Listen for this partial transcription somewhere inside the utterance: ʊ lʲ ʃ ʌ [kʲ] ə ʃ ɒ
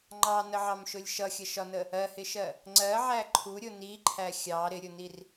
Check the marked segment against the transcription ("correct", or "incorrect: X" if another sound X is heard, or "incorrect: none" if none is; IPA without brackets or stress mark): incorrect: xʲ